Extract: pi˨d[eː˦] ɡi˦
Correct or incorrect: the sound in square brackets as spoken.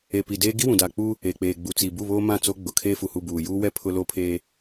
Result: correct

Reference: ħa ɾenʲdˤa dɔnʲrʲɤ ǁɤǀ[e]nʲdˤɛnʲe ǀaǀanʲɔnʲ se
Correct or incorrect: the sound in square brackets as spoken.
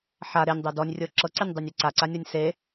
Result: correct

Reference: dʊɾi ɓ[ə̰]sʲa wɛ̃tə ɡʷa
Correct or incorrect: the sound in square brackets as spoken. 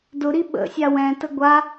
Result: correct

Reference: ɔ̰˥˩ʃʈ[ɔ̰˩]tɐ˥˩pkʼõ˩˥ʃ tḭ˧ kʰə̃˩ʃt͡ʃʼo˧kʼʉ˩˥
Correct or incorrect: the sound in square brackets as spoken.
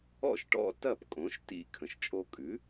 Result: incorrect: ɔ̰˧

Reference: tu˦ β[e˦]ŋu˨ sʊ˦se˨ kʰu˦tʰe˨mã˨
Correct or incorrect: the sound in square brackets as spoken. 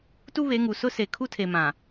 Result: incorrect: e˨˦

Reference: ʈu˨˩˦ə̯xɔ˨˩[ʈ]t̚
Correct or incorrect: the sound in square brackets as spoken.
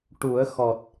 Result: incorrect: none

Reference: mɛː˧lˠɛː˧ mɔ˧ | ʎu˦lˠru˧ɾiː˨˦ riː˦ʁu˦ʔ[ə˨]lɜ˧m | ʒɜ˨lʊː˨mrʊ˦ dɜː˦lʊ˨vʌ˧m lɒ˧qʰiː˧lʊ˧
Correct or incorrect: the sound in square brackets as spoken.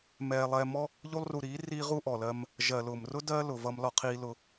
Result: incorrect: ɔ˨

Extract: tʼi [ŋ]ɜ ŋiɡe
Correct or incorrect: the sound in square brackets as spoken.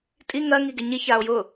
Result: correct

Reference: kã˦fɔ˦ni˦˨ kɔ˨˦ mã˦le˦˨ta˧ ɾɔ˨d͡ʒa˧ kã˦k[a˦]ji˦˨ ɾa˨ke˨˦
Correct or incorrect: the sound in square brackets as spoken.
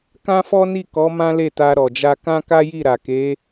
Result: correct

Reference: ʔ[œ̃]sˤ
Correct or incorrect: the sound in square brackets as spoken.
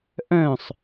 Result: correct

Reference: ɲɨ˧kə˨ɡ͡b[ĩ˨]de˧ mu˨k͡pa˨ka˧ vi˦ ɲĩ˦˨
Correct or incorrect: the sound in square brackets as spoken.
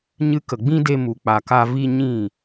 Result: incorrect: ĩ˦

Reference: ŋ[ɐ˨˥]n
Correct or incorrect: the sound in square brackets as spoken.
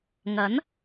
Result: correct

